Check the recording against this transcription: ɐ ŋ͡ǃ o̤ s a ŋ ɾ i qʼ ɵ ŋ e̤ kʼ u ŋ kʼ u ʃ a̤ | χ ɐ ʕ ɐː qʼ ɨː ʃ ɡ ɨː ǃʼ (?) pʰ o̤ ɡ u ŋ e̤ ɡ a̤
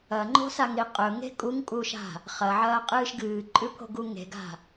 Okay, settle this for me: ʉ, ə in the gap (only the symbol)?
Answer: ʉ